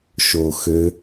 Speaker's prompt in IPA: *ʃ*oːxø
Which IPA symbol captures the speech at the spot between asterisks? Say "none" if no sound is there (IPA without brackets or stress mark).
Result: ʃ